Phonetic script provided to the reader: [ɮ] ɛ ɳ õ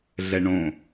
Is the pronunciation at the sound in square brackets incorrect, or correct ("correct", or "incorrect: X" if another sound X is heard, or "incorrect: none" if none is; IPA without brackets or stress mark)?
correct